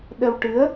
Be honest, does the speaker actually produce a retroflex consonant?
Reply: yes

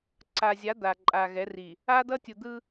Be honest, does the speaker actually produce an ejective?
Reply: yes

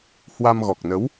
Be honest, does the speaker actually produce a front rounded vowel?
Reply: no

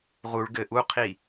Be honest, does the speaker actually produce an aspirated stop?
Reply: yes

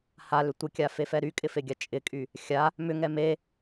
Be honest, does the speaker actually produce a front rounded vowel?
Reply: yes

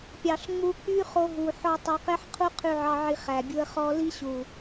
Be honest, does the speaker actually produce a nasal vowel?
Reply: no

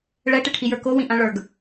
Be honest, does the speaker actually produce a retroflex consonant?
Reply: yes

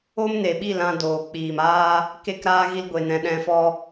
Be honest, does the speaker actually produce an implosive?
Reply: yes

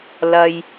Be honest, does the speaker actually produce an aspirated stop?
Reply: no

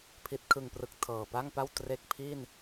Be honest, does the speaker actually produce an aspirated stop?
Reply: yes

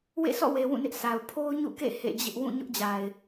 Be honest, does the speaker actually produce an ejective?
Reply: no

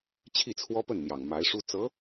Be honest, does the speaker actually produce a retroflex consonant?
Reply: yes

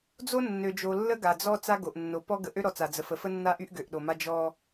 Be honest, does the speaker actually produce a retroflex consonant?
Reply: no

